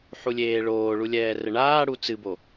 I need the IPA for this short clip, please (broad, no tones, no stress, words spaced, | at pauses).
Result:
ħulʲeːɭoːɭu lʲɛːrɘɳaːɽu t͡sɨbo